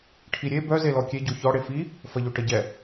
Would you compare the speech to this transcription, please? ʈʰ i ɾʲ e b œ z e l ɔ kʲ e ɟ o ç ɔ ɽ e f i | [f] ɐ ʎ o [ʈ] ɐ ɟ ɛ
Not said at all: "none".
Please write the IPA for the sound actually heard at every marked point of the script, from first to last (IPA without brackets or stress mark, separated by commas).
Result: f, ʈ